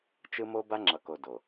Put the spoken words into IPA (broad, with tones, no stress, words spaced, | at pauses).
t͡ʃɯ˦mo˦ ba˦ŋ͡ǁʌ˨ko˨ do˨